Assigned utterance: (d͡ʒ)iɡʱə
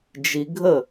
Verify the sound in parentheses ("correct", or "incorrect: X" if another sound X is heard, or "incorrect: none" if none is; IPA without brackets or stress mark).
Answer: correct